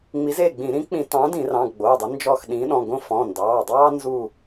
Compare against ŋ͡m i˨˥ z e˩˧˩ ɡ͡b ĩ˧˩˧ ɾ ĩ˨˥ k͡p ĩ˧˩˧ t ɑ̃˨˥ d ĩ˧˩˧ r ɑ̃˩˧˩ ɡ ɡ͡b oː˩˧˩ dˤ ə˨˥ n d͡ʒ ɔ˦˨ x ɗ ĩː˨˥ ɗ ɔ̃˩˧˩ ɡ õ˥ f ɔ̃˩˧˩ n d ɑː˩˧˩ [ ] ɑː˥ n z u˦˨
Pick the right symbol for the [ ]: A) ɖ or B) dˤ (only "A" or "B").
B